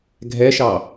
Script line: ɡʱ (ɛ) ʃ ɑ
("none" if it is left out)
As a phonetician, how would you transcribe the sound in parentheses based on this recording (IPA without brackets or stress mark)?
ɛ